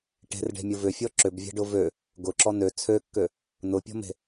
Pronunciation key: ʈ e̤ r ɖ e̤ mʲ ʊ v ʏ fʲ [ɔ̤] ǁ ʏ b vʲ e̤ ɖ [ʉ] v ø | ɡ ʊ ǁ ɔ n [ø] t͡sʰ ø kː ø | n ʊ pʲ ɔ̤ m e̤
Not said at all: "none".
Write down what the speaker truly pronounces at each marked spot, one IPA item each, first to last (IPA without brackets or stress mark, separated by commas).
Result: ɔ, ʊ, ø